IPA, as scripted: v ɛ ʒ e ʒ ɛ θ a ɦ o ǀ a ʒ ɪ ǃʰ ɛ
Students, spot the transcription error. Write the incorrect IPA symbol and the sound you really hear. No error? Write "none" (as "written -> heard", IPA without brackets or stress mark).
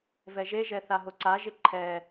none